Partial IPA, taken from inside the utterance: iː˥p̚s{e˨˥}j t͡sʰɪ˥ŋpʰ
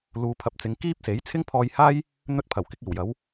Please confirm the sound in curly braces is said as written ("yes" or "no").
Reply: yes